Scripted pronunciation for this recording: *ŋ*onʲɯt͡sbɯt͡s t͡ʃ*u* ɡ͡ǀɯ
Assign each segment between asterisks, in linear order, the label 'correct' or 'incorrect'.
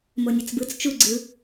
incorrect, correct

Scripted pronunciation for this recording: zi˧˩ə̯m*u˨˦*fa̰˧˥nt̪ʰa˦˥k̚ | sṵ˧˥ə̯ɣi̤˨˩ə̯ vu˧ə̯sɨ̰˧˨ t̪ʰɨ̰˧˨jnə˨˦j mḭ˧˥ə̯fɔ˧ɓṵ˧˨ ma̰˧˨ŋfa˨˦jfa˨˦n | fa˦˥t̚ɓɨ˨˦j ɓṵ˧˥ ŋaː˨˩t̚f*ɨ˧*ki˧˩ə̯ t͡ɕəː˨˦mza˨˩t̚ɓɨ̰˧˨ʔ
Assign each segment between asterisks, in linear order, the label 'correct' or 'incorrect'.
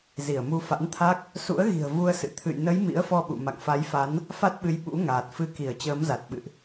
incorrect, correct

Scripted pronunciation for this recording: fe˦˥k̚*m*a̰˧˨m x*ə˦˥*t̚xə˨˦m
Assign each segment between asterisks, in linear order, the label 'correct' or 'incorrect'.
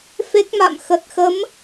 correct, incorrect

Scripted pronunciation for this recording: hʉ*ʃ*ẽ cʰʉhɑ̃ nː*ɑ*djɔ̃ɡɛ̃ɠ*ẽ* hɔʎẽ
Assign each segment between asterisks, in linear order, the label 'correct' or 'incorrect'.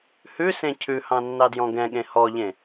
incorrect, correct, correct

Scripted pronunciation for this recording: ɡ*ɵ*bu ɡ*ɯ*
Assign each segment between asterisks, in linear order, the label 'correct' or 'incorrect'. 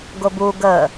incorrect, incorrect

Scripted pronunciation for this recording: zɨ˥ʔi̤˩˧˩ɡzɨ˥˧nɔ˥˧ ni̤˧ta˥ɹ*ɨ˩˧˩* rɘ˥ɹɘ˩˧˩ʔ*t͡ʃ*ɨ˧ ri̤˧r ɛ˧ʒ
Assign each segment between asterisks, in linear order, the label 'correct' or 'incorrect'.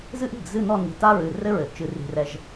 correct, correct

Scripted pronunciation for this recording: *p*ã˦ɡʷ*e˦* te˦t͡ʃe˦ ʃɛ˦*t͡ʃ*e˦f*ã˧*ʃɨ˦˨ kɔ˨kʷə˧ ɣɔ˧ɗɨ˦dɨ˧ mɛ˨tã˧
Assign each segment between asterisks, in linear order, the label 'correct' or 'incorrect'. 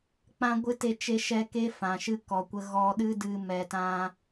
incorrect, incorrect, incorrect, incorrect

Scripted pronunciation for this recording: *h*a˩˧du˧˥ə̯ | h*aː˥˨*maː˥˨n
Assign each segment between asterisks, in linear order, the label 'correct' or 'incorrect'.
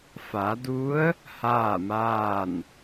incorrect, correct

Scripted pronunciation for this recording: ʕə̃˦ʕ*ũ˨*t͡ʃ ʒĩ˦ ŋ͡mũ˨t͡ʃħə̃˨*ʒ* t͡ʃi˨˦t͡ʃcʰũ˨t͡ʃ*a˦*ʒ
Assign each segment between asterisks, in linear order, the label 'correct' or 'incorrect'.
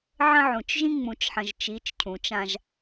correct, correct, incorrect

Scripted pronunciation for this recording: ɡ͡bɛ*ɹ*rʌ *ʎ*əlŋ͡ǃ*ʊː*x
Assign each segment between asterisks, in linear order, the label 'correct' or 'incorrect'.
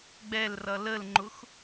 incorrect, incorrect, incorrect

